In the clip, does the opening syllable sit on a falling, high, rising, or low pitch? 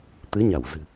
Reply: rising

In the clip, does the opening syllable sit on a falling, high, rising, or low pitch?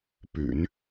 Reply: low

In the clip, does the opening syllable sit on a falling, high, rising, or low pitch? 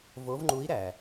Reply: rising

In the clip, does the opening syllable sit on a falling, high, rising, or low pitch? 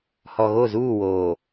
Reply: low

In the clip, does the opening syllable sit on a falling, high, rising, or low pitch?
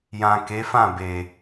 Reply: low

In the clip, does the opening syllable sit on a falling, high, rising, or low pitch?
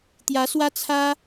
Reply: rising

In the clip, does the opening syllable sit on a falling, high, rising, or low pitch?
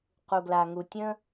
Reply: low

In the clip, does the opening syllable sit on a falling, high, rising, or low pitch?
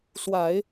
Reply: low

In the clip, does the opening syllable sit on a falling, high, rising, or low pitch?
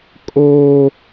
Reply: high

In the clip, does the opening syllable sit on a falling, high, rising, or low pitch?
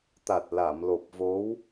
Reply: low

